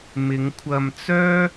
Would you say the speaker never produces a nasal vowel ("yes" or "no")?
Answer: yes